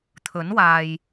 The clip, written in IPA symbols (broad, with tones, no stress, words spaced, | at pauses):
t̪ʰɵ˨˥nwaː˨j